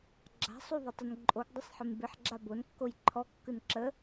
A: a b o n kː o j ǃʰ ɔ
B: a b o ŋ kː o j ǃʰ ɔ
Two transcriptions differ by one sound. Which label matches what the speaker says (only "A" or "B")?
A